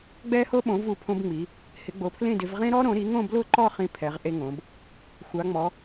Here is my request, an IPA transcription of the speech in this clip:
ɡ͡b ɛ˥ h o˥ ɓ õ˨˦ v u˨˦ pʰ õ˥ b ŋ͡m i˨˦ | h ɪ˨˦ ɡ͡b o˨˦ pʰ l ẽ˥˧ d ɪ˨˦ v ʁ ẽ˥ ɾ ɔ˥ ɾ õ˨˦ ɾ i˨˦ ŋ õ˥˧ b l ʊ˥˧ ǃ ɔ˥˧ χ ĩ˥ pʰ ɛ˨˦ ʁ ʔ e˥ ŋ õ˨˦ b | xʷ a˨˦ ŋ͡m ɔ˨˦

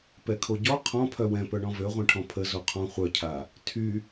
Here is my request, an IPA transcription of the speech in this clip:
p ɛ kʰ o ɟ ɔ qʰ ɔ̃ pʰ œ w ɛ̃ p œ ɳ ɔ̃ v ø ʁʷ ɛ̃ ʈʰ ɔ̃ pʰ ə z o qʰ ɔ̃ χʷ œ cʰ a | tʰ y

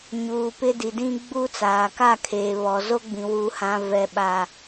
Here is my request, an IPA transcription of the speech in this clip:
ɲ uː˨ p ɪ˦ d i˨ d ĩ˦ ɡ͡b u˦ t͡s aː˨ k a˦˨ kʰ eː˨ β ɔ˨ z o˦ ɡ͡b ĩ˨ w u˨ h ã˨ v ɛ˨ ɓ a˨

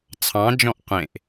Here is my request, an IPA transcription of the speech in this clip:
t͡sʰ ɑ̃ d͡ʒ ɔ̃ ʔ qʷ ẽ ʔ

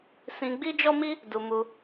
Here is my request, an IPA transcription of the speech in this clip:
s ĩ˧ ɡ͡b i˦ d͡ʒ ɔ˦ m i˦ | d u˧ m u˧

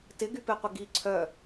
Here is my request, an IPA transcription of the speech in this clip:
t ɪ ɡ y p e qʷ ɪ ɡ i ǀʰ œ

